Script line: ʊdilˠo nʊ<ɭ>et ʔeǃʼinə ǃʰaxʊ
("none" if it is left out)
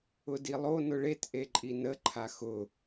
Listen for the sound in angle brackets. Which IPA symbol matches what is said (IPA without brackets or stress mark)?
ɭ